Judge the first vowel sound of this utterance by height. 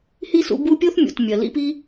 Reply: high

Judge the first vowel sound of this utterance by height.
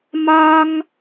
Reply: low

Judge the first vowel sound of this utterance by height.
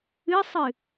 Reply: high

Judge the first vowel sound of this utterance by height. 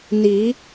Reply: high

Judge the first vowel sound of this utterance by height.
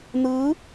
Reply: high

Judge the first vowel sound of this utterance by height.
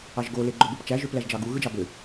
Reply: low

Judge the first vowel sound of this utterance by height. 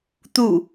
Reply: high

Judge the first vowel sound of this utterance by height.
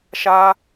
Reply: low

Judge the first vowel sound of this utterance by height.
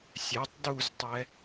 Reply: mid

